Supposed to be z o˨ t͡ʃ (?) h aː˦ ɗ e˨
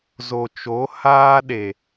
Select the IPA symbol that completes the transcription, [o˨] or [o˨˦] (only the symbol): o˨˦